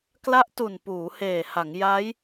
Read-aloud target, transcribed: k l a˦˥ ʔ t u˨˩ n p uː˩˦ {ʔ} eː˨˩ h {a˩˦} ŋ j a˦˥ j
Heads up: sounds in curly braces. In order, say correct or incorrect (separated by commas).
incorrect, correct